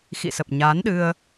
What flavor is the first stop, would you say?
plain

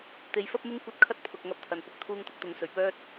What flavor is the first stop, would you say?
plain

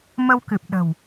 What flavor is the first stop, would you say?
plain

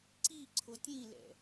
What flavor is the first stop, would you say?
click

